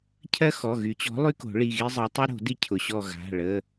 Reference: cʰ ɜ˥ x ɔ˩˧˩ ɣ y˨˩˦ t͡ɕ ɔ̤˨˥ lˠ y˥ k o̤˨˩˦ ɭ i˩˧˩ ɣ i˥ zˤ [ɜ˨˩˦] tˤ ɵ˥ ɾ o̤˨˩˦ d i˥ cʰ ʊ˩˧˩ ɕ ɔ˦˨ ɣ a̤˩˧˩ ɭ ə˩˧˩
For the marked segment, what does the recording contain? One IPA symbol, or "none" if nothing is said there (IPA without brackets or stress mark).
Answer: ɜ˨˥